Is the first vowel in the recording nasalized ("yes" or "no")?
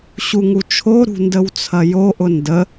no